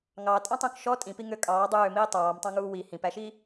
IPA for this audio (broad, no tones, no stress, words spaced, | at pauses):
ŋɑ tʼɑ̃tˤũkʃɔ tʼĩpi ŋøkʼɑː dˤøːmiː tˤɑːmtˤɑ̃ ŋuːwi hĩpæʃi